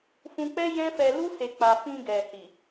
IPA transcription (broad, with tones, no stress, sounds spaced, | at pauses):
f ũ˧ k͡p ɛ˦ j ɛ̃˦ f ɛ˧ l u˦ s e˧ k͡p a˧ f ĩ˧ ɡ ɛ˨ h i˨